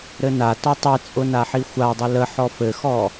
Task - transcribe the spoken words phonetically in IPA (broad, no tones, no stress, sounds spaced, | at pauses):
ɾ ɘ n a t ɔ tˤ ɨ t͡sʼ ʊ n a ħ i xʷ a dˤ ɘ l ə ħ ɔ f ɘ x ɔ